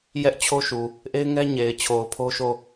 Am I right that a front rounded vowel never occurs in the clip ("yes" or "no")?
yes